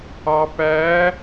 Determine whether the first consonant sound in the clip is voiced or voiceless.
voiceless